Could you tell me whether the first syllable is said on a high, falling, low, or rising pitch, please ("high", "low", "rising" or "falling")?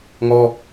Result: high